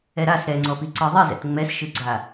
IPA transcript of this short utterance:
ɛ ɾ a s ɾ ɛ ŋ͡ǀ ɔ p i ǀ ɯ ðˤ i z ɛ̰ t ŋ͡m ɛ s ʃ ɯ ɡ͡ǀ a

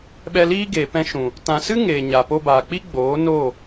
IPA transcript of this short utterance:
ɓ ɛ˧ l iː˦ ɡ eː˨ p ɛ̃˧ ʃ ũ˨ | t ã˨ s ɨ˦ ŋ eː˨ ɲ a˨ p o˧ b aː˨ k͡p i˦ ɡ͡b oː˨˦ n o˦˨

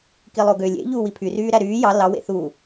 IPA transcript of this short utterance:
k i lˠ o ɡ ø lʲ ḛ ʎ uː w i pʰ y r yː ɾ æ ɾ yː j ɑ l ɑ w ḛ θ uː

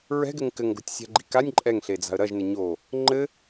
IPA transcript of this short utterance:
ɹ ɛ̤ ɡ ɘ ŋ k ɘ ŋ ɡ o̤ tʲ sʲ a̤ ɡ͡ǃ i̤ k a nʲ ǃʼ ɛ ŋ ɬ e d͡z a̤ ə̯ ɾ ɐ ʒ n ɘ ɲ o | ŋ͡ǃ ɘ

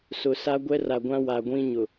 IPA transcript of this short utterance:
s ʊ˨ s a˦ ɡʷ ɛ˦ r a˨ ɡʷ ã˦ w a˨ ɡʷ ĩ˦ ɲ ʊ˨

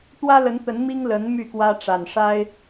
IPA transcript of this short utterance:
t̪ w ä˦ l ə˨˦ n t̪ ə˨˦ n m i˦ ŋ l ə˨˦ n m y˥˨ k w ä˦ ʈ͡ʂ a˨˩ n ʂ a˦ ɪ̯

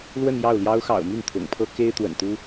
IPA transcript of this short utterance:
l w ə˥˧ n j ɑ˥˩ ʊ̯ l j ɑ˥ ʊ̯ x ɑ̰˨˩ ʊ̯ m y˥˩ n t̪ʰ ʊ̰˨˩ ŋ pʰ ɤ˥ k e˥ ɪ̯ t̪ w ə̰˨˩ n t̪ u˥

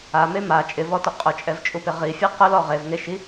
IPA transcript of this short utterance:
a m e m a t͡ʃʼ ɪ v ɔ t ʊ qʼ ʊ t͡ʃʼ ɛ v t͡ʃʼ u p ɪ ʁ i fʲ e q ʊ l ɔ ʁ e v ŋ e ʃ i

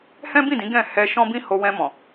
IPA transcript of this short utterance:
h ɛ̃˦ b ĩ˦˨ d ĩ˨˦ ɡ ɛ̃˦˨ h ɛ˧ ʃ ɔ̃˦ b ĩ˦ h o˧ w ɛ̃˧ m ɔ̃˨

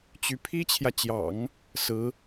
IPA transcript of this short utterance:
t͡ɕ y˧˥ pʰ i˥ t͡ɕʰ j ä˨ t͡ɕ j ɑ̰˨˩˦ ŋ | s ɹ̩˧˥

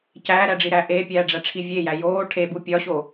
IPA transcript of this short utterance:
c æː ɾ æ ɖ͡ʐ i ɾ æ ʔ e pʲ æː ɖ͡ʐ æ ʈ͡ʂʰ i vʲ e j æ j oː ʈʰ e b u pʲ ɒ ɕ o

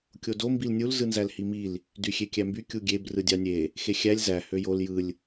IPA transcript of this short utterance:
kʲ o d o m b i l nʲ u l z ɯ n z æ l h i m i l | d y xʲ e kʲ æ m b y kʲ u ɡʲ e b r ɯ dʲ ɑ nʲ e | x e xʲ æ lʲ z æ h ø j o l j ɯ lʲ

